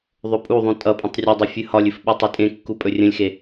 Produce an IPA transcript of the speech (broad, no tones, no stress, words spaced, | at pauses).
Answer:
ðˤɵpʼuðˤũ tʼʌpʼə̃tˤ rʲʌdˤə fʲɨhɒlʲɨf ɓɵtˤitʼẽkːu pʼɵrʲə̃lʲxe